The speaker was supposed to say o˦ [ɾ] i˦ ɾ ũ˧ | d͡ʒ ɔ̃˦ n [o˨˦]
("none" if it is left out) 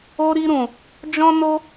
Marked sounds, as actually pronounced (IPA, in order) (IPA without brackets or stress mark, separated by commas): ɾ, o˦